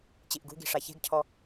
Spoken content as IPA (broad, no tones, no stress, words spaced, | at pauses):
t͡ɕiʔɡṳɡi̤ ʂaçe̤ɡcʰɔ